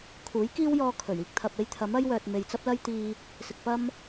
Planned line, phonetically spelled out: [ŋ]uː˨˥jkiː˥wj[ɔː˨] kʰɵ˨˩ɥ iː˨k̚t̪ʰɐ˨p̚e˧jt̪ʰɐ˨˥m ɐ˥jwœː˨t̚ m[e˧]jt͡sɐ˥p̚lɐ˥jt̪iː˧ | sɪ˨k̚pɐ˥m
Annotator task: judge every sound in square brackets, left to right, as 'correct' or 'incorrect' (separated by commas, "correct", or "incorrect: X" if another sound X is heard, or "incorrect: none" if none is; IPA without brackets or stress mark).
incorrect: kʰ, incorrect: ɔː˧, incorrect: e˨